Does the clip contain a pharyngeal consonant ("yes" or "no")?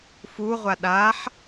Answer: yes